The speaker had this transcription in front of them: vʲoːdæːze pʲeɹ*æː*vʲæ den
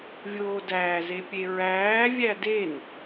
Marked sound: correct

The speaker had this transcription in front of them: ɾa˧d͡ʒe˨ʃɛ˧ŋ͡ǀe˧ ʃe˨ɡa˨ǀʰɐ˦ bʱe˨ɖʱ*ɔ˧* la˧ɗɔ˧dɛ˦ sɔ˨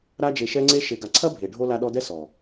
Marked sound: incorrect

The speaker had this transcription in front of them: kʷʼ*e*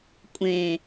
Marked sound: incorrect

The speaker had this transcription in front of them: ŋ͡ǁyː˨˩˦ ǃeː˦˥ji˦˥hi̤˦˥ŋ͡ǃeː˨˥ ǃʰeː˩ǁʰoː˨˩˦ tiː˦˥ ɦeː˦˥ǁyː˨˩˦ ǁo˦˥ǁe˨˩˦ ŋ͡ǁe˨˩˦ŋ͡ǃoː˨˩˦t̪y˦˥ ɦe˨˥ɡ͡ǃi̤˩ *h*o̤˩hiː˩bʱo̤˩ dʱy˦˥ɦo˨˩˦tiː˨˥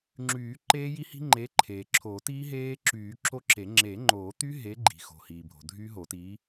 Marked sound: incorrect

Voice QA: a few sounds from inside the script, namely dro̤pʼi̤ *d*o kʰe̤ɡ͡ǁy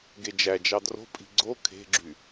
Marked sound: incorrect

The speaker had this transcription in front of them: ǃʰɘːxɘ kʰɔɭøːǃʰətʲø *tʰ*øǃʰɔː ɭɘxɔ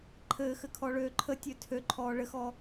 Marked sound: correct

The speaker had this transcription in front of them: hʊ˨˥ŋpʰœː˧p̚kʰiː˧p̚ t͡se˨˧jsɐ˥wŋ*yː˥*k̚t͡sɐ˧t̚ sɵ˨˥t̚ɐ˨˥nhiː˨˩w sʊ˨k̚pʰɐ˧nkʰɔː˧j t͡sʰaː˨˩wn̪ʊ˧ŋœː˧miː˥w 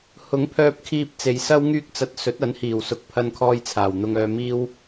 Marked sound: correct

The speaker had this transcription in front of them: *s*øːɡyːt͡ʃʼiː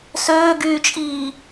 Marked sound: correct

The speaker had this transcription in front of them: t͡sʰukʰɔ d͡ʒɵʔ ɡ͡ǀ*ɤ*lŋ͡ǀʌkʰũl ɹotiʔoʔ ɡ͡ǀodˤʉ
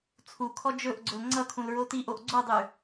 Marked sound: incorrect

